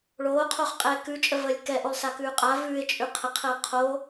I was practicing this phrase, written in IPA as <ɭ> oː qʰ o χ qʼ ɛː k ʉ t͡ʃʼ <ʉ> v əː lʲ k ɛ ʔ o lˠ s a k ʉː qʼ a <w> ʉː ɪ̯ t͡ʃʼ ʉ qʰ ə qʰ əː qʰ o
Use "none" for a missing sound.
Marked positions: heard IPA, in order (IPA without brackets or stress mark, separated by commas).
ɭ, ə, v